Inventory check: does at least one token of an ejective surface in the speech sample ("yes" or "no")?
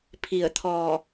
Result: no